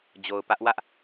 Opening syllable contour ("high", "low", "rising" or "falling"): low